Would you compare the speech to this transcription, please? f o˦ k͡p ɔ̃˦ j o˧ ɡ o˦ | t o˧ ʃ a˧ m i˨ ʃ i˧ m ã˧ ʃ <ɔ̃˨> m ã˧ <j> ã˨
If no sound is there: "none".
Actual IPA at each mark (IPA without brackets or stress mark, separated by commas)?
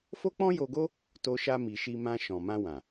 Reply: ɔ̃˨, w